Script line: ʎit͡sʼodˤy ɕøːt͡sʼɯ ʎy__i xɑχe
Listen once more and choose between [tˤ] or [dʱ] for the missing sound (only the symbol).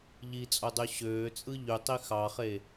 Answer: tˤ